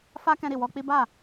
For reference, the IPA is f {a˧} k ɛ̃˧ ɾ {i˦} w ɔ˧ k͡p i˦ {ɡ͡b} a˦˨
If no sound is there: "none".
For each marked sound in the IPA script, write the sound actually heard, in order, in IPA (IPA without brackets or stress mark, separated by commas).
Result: a˧, i˨, b